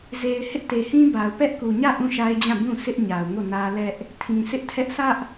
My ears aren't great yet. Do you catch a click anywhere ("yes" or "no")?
no